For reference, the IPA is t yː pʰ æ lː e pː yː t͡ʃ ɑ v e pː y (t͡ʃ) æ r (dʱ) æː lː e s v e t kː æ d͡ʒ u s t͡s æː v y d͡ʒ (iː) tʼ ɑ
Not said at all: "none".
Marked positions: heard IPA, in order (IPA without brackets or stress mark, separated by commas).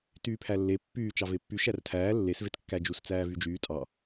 ʃ, tʰ, yː